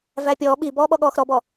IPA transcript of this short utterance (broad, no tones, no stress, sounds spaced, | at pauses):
v æ pʲ ɔː ɓ i b ɔː ɓ ɔ ɠ ɔː x ɾ ɔ b ɔ